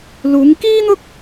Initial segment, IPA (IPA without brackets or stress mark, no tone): l